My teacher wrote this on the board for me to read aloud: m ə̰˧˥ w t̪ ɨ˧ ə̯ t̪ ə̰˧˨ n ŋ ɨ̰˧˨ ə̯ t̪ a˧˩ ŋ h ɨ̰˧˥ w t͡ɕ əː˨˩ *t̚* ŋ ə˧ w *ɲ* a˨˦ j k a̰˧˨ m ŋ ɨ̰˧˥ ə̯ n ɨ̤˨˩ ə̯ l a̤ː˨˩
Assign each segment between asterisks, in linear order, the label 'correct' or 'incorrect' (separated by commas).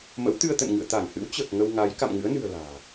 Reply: incorrect, incorrect